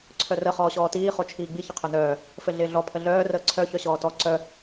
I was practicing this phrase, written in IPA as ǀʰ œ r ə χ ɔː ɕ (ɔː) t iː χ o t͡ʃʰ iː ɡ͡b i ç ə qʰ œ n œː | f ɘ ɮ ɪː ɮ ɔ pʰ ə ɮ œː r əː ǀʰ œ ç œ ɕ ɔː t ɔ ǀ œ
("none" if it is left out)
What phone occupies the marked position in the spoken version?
ɔː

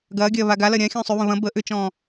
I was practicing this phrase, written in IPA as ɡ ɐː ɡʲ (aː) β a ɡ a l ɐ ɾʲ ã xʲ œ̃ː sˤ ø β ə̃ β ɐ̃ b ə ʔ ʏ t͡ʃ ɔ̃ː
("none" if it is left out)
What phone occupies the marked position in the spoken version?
ɐː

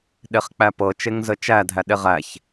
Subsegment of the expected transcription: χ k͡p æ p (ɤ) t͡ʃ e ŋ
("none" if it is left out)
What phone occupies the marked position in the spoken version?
ɤ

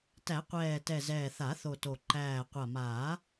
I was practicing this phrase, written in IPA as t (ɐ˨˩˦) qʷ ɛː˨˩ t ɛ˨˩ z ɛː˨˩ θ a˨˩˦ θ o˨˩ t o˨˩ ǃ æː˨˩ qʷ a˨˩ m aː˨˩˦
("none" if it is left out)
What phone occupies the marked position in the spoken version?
æ˨˩˦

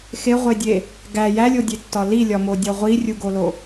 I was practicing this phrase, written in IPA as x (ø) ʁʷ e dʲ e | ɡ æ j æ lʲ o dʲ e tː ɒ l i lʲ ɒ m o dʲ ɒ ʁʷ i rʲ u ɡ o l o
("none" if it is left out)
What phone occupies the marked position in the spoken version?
e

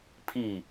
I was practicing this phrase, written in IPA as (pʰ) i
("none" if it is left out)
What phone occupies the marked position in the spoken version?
pʰ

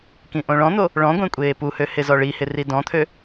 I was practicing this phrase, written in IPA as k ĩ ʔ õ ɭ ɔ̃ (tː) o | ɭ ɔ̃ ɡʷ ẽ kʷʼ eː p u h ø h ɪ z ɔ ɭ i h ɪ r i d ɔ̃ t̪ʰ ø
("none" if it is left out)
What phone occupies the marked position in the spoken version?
n̪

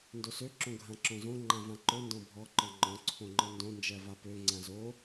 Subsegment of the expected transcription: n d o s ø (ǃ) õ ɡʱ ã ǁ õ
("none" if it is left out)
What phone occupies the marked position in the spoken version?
ǁ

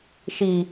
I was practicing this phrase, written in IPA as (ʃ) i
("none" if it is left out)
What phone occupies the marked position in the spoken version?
ʃ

